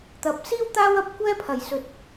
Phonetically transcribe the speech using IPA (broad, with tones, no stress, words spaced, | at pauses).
t̪ɐ˨p̚ siː˥w t̪aː˥wɐ˥p̚kʷɛː˥ pʰɐ˨˩jsɵ˨t̚